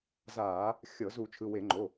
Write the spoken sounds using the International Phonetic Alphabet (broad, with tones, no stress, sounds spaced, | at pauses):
z aː˧˩˧ | xʲ ɤ˧˩˧ z u˧˩˧ t͡ʃʰ ɯ˩˧˩ w e˧˩˧ ŋ͡ǃ o˩˧˩